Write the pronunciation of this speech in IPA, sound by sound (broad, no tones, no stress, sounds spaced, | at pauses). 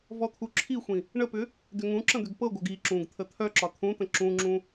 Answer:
v ɔ t̪ʰ u ǁʰ i xʷ ĩ | ɳ ə p ʏ | d ʏ ŋ ũ ǁ ə̃ d̪ ʏ ɡ p ɤ ɡʷ œ ɡ i ǁ ũ ɡ t̪ʰ ə t̪ʰ œ ǁ ɒ t̪ʰ ũ t̪ ə̃ ǁ ũ ŋ͡ǁ ũ